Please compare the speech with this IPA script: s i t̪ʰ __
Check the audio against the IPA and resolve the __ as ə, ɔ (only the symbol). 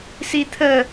ə